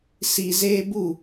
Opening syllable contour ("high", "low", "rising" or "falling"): low